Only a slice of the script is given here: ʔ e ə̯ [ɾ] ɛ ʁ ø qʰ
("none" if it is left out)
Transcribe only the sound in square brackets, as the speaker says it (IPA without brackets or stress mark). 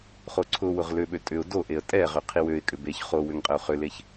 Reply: tʼ